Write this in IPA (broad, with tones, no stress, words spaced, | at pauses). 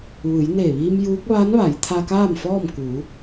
ʋɯː˩˧jneː˧˩ʋiː˧m juː˧˥k̚ ʋaː˧˥nʋa˩˧jt̪ʰa˧ kaː˥˨mfɔː˥˨m kuː˩˧